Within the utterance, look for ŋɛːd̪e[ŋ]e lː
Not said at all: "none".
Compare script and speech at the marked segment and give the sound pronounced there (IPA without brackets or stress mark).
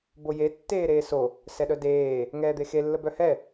x